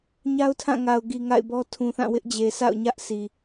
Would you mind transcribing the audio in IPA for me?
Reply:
ɲ a˦ ʊ̯ tʰ ã˦˨ ŋ a˨ ʊ̯ ɡ i˨ ŋ a̰˦˨ ɪ̯ b ɔ˦ tʰ ũ˨ θ ã˦˨ w ɪ˦ ʔ d͡ʑ e˨ sʰ a̰˦˨ ʊ̯ ɲ ä˦ ʔ sʰ i˨

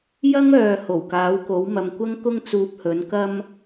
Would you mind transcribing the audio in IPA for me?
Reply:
j ɐ˥ ŋ œː˨ h o˨˩ w k aː˨˥ w k o˨˥ w m ɐ˨ m kʷ ɐ˥ ŋ k ʊ˥ ŋ t͡s uː˧ p̚ h ɵ˨˥ n k ɐ˥ m

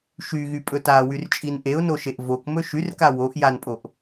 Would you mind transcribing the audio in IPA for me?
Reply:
ʃ y ɣ y pʼ ɵ t a w y r t͡ʃʼ i n ʔ e ʊ̯ n o ʃ e ʔ v o k m ɵ ʃ y r k a w o ʔ j a n pʼ o ʔ

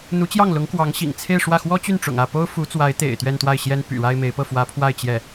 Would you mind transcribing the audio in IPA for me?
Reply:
n̪ u˧˥ t͡ɕ j ɑ˥˩ ŋ l ʊ˧˥ ŋ k w ɑ˧˥ ŋ ɕ ḭ˨˩ ŋ t͡sʰ e˥˧ ɪ̯ ʂ w ä˥˩ x w ɔ˥ t͡ɕ y˥˩ n ʈ͡ʂ ʊ̰˨˩ ŋ ä˥˩ p o˥ ʊ̯ f u˧˥ t͡s w a˧˥ ɪ̯ t̪ ḛ˨˩ ɪ̯ t̪ ɥ ɛ˥˧ n t̪ w a˥˩ ɪ̯ ɕ j ɛ˥ n p y̰˨˩ ɻ a˥ ɪ̯ m e˧˥ ɪ̯ p ɤ˥˩ f w ä˧˥ pʰ w a˥˧ ɪ̯ t͡ɕ j ɛ˥˩

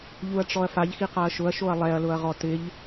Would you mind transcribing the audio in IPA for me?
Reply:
ʎ u ɐ̯ ʈ͡ʂ ɔ ɐ̯ f a ʎ x i q a ɐ̯ ʃ ʊ ɐ̯ ʃ o ɐ̯ lˠ ɛ ɐ̯ l ʊ ɐ̯ ʁ ɔ t ɪ ʎ

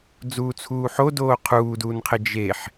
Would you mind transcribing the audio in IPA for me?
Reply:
d͡z uː t͡sʰ uː ħ o d oː qʰ uː d uː n qʰ e d͡ʒ e ħ

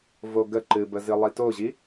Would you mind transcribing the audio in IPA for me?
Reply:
v o ɡ ə ǃ ɨ b ə z ɨ lˠ i t o ʑ i

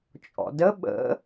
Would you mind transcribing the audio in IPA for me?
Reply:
t͡ʃʼ ɔ̰ d ə ɓ ə̰

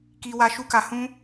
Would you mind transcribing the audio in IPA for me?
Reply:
k i˧ w a˧ ʃ u˦ k a˧ h ũ˦

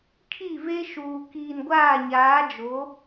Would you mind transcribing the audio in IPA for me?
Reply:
kʰ i˦˨ v e˦ ʃ uː˨ k iː˨ n ɡʷ aː˦˨ ɲ aː˨˦ d͡ʒ o˨˦

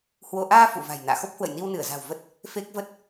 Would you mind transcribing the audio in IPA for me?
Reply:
h w o˧ ʔ aː˧ f ṵ˧˨ v a̤˨˩ j n a̰ː˧˨ x o˦˥ p̚ h w ə̰˧˨ j n i˧ w n ɨ˧˩ ə̯ z a̤˨˩ w v ə˦˥ t̚ | f e˦˥ k̚ v ə˦˥ t̚

